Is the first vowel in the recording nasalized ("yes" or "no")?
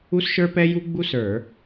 no